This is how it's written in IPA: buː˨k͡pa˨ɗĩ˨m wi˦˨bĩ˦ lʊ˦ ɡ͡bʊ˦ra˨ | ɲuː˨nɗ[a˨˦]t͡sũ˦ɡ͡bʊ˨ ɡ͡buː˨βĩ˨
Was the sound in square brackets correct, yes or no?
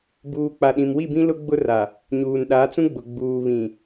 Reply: yes